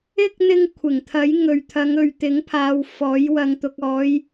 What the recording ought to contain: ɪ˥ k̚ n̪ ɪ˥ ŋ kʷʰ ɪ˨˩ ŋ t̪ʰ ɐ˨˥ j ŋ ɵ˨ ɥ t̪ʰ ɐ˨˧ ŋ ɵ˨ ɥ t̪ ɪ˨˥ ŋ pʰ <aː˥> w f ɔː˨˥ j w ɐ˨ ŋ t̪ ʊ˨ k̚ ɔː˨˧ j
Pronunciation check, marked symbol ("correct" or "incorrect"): incorrect